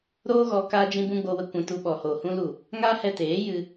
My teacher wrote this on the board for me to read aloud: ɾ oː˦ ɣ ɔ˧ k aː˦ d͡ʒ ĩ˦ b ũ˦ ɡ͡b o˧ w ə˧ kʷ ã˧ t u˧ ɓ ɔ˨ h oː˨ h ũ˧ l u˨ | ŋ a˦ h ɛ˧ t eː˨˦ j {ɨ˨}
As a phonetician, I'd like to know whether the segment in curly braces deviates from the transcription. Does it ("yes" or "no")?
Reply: yes